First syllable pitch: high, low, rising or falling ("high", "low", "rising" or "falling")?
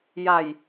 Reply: low